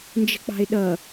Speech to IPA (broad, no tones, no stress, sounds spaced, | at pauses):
n d͡ʒ ə̤ k͡p ɑ̤ ɪ̯ ɗ ʌ